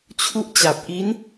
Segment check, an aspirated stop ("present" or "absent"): present